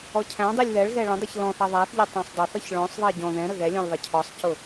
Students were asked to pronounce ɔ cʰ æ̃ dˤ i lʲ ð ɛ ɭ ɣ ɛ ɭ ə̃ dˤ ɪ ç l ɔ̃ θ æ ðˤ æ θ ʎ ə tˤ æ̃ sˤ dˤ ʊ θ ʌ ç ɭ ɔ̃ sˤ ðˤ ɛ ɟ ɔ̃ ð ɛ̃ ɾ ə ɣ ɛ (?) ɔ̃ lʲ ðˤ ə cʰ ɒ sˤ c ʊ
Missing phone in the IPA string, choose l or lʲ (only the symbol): lʲ